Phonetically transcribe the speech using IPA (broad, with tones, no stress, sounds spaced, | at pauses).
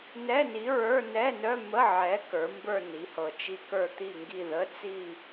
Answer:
n ɛ˧˥˧ n i˨˥ ɹ ə˞˧˥˧ n ɛ˧˥˧ n œ˧˥˧ m ə˧˥˧ ʕ ɛ˨˥ k ə˞˨˥ m b ə˞˥˧ n i˨˥ h ɤ˧ t͡ʃ i˥˧ k ə˞˥˧ t̪ i˥˧ ŋ ɡ i˥˧ ð ə˧˥˧ t͡s i˥˧